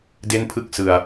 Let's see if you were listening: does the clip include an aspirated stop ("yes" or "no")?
yes